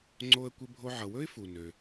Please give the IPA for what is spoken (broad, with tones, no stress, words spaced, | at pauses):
ŋ͡ǀo˧ə̯ kʷɪ˧bʱo˧ʕʌ˩wɵ˥ɪ̯ fu˩nø˩